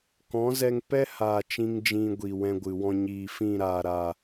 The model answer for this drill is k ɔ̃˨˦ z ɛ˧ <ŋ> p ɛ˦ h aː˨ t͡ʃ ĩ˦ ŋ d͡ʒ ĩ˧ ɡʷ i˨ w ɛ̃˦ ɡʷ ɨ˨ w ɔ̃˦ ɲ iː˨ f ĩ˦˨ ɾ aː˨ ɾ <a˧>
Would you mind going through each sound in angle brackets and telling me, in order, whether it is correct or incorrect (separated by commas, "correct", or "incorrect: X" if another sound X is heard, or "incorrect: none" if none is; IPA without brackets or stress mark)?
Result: correct, incorrect: a˨